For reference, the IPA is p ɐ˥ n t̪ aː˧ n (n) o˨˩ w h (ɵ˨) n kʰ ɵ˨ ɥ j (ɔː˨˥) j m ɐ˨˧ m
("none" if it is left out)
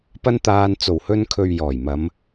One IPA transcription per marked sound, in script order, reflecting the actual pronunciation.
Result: t͡s, ɵ˧, ɔː˨˩

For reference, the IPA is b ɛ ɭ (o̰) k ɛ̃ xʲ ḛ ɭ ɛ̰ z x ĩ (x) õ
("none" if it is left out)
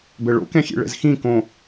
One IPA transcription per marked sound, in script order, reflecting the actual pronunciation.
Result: o̰, k

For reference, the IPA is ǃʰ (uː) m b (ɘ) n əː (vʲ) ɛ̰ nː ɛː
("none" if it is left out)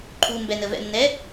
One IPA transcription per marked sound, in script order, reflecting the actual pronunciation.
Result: uː, ɛ, v

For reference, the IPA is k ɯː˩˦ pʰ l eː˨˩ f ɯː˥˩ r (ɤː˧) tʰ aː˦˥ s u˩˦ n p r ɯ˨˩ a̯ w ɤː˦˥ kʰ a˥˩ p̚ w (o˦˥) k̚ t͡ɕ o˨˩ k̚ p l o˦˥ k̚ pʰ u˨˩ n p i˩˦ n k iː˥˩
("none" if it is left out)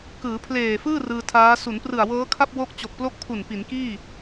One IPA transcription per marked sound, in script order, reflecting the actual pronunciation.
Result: ɯː˧, o˦˥

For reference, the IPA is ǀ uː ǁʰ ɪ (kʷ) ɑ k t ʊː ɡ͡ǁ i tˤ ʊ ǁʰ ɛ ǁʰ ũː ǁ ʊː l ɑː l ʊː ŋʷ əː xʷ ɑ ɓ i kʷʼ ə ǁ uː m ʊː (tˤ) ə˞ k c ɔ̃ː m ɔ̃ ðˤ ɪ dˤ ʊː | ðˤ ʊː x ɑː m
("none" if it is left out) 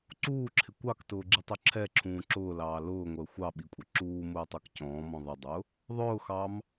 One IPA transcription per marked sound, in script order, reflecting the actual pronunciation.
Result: kʷ, tˤ

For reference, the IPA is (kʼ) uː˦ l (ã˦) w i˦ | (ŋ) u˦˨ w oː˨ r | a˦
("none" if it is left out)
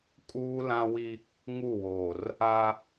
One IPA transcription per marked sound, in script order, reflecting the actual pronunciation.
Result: kʼ, ã˦, ŋ

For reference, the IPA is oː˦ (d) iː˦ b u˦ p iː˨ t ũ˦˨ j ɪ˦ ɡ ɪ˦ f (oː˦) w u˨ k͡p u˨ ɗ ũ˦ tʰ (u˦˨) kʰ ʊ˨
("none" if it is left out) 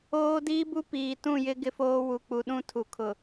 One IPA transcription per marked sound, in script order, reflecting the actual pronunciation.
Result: d, oː˦, u˨

